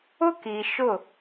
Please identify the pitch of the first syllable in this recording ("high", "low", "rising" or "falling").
high